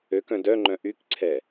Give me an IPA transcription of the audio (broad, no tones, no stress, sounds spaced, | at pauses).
ø k œ̃ d œ ŋ͡ǃ œ̃ ʔ y k ǀʰ ɛ